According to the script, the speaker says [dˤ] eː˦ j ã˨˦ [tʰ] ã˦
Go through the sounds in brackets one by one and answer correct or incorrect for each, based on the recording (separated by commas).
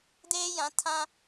incorrect, correct